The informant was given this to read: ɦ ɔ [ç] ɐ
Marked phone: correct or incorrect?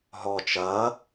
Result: incorrect